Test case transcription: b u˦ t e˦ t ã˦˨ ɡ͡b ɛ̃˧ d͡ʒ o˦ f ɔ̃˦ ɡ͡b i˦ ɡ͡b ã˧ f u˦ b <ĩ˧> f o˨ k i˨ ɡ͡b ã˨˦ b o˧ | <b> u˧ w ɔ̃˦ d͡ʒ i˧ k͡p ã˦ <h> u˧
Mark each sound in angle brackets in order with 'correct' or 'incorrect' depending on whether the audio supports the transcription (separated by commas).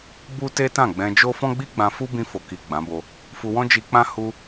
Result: correct, incorrect, correct